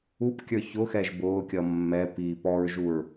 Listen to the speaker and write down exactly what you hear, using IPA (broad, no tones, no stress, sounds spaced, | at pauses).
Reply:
u p kʲ ə˞ ç ʊ x ɛ ʒ b ʊː kʲ ʌ mː ɛ p iː p ɔ ɹ ʒ u ɹ